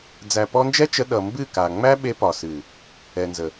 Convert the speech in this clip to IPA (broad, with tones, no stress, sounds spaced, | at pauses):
d͡z æ˨ p ɔ˧ n d͡ʒ ɛ˦ t͡ʃ ə˧ ɗ ʌ˨ m b ɨ˦˨ k a˨ ŋ͡m æ˦ ɓ e˧ p ɒ˨ s ɨ˨ | ɛ˨ n z ə˨